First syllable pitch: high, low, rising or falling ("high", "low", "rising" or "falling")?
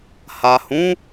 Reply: low